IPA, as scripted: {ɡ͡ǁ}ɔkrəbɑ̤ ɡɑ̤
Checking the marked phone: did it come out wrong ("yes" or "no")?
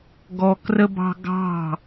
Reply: yes